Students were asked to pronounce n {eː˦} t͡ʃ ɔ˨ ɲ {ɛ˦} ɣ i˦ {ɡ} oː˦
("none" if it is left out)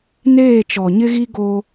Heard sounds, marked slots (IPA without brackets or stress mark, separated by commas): eː˦˨, ɪ˦, ɡ